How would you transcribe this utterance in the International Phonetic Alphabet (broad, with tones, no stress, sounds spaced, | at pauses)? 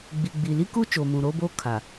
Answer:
ɡ͡b i˨ ɡ͡b i˨ l i˦ k u˦ t͡ʃ oː˨ m ũ˨ ɾ oː˦ b oː˦ kʰ a˨